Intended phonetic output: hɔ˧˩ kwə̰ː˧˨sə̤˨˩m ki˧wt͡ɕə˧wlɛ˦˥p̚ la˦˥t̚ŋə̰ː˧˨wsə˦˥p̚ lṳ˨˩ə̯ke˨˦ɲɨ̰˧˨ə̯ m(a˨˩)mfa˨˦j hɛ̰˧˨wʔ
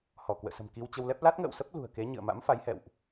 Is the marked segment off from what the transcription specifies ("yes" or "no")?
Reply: yes